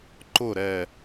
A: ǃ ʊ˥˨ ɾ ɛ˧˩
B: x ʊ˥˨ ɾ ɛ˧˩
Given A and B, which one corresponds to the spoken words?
A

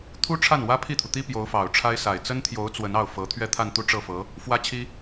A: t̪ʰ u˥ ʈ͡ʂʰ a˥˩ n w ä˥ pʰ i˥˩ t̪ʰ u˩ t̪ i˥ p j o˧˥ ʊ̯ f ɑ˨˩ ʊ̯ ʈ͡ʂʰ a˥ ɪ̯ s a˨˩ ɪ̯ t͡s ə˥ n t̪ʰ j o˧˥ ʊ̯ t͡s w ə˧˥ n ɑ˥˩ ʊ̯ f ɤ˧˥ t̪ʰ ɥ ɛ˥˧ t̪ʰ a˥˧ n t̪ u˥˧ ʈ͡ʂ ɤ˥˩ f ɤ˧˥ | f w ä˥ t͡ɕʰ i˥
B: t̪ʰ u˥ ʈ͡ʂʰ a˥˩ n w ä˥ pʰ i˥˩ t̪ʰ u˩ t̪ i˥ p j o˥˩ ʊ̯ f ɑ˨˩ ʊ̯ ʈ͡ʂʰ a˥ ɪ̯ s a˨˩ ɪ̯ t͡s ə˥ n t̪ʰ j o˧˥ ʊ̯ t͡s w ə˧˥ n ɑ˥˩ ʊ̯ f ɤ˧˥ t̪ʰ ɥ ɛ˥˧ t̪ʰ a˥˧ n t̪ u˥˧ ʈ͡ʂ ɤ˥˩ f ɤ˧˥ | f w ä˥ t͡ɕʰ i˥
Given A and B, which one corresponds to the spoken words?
A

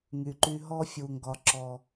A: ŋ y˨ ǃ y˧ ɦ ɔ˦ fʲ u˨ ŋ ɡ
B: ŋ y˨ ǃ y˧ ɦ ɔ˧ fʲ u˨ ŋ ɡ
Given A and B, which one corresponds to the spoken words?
A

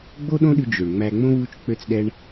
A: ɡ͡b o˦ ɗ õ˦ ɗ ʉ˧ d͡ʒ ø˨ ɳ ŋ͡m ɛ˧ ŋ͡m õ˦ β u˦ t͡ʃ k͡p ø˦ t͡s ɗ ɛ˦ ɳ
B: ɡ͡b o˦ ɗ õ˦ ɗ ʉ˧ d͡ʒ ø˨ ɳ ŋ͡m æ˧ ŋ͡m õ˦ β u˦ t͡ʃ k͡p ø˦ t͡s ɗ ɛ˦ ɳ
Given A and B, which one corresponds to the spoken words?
B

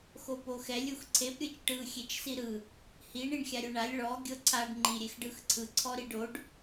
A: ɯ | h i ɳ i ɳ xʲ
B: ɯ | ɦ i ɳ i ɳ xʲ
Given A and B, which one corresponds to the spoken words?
A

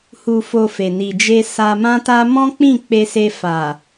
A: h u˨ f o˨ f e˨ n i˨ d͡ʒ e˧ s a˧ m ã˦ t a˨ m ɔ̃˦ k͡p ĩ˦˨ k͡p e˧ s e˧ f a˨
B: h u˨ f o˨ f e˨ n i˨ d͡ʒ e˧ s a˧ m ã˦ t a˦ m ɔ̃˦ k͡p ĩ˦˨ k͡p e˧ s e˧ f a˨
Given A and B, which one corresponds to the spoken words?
B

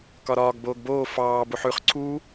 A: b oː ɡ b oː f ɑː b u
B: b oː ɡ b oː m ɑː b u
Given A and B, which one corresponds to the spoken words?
A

